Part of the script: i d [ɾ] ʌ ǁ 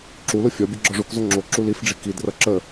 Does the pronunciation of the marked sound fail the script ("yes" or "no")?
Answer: yes